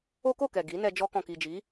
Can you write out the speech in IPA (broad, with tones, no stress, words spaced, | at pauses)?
o˦ko˦˨kɛ˨ ɡi˨˦nɛ˧ d͡ʒɔ˧kɔ̃˨ki˨d͡ʒi˨˦